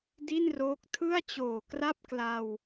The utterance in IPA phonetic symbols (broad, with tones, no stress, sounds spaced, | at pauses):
d i˥˩ n r oː˦˥ k̚ tʰ ɯ˥˩ a̯ t͡ɕ oː˨˩ k r a˥˩ p̚ k l a˧ w